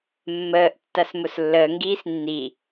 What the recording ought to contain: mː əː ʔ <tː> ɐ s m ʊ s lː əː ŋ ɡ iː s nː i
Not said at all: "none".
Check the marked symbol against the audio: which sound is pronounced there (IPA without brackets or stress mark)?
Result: tː